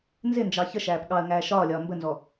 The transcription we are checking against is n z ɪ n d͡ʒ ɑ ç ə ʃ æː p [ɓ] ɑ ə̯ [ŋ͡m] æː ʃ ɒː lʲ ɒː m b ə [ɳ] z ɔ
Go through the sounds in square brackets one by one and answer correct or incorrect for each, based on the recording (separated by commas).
incorrect, incorrect, incorrect